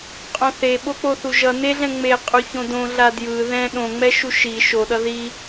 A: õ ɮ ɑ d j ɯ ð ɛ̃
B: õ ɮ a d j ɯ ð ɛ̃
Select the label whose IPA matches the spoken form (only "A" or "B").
B